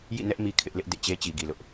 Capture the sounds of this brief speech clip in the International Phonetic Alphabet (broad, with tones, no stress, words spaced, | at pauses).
jḭ˦˨nɛ˦ʔ mi˦kʰɪ˦ʔlɪ˦ʔ dḛ˦˨t͡ɕe˦ t͡ɕi˨ɡi˨lʊ˦ʔ